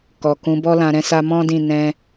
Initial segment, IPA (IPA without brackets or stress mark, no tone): k